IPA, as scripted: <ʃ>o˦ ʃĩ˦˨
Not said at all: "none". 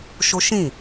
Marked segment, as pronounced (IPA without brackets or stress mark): ʃ